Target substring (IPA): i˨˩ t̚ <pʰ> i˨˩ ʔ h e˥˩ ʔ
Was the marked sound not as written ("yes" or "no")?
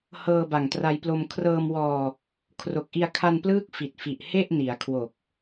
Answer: yes